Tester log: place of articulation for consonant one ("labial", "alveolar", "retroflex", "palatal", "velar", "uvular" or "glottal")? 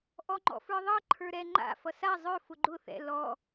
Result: glottal